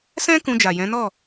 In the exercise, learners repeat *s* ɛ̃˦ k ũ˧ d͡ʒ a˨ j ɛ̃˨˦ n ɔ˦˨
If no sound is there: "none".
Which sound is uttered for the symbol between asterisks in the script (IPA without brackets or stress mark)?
s